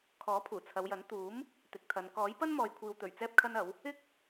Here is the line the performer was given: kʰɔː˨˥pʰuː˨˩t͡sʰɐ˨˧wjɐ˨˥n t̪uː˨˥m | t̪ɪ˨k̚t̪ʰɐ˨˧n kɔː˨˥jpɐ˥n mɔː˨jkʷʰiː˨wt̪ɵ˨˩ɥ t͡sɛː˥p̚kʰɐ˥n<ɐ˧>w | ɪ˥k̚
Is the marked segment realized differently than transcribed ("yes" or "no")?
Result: yes